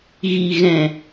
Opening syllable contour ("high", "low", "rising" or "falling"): low